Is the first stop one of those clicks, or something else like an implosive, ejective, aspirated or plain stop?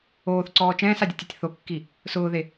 click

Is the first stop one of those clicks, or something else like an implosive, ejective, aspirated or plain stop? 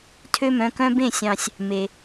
aspirated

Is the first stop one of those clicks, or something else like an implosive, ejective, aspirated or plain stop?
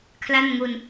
aspirated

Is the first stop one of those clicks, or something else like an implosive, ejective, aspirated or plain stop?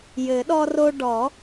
implosive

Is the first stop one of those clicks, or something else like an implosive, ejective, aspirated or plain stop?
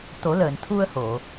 plain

